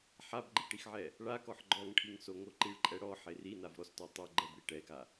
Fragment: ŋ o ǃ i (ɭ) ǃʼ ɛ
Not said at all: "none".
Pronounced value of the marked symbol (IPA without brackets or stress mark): ɭ